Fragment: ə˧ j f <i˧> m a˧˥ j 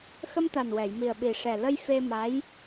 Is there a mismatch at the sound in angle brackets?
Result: yes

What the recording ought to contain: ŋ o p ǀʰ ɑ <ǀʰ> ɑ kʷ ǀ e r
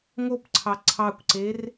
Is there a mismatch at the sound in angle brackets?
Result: no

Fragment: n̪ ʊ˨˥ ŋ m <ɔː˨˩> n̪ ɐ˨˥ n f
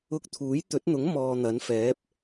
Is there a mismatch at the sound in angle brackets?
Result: yes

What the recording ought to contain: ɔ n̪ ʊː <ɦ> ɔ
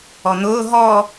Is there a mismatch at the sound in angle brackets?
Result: no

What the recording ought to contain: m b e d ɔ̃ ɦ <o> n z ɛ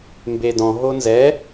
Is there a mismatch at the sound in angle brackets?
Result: no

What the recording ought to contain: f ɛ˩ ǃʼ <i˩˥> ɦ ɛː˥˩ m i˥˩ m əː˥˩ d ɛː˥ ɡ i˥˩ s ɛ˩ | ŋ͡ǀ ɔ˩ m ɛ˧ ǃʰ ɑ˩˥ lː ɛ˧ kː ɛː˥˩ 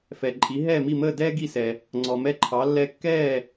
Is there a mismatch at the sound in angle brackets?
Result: no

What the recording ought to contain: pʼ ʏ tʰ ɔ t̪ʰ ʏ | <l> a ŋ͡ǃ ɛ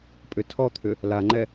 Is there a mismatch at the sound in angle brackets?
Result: no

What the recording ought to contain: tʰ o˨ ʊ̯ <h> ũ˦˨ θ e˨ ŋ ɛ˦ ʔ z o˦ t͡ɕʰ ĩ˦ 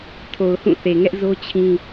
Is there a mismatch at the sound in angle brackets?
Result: no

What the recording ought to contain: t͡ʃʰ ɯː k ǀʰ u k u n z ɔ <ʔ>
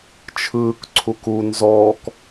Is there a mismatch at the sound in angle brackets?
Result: yes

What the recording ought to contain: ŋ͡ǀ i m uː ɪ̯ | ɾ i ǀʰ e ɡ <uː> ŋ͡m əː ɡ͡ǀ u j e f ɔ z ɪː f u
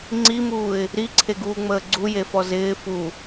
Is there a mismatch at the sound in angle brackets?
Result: no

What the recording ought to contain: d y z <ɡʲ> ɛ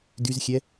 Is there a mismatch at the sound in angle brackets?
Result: yes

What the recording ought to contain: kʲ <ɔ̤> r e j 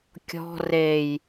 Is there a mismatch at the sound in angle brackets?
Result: no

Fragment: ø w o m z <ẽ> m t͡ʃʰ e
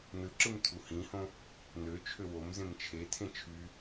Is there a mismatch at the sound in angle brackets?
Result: no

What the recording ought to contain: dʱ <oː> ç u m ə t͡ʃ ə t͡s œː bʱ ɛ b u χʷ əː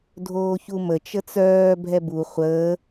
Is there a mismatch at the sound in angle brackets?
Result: no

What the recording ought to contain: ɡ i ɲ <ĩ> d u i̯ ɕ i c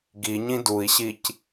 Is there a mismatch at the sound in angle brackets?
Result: no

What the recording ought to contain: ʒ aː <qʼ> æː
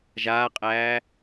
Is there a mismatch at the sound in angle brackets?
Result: no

